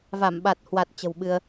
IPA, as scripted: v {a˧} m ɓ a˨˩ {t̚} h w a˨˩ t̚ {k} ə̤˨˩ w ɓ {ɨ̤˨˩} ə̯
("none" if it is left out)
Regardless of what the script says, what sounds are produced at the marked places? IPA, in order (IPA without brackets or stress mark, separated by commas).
a˧˩, t̚, t͡ɕ, ɨ˧